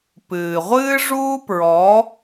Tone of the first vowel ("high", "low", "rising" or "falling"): low